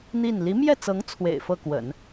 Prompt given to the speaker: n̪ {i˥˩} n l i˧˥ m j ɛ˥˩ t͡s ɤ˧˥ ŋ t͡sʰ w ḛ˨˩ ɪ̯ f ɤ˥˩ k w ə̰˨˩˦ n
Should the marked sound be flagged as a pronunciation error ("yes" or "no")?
no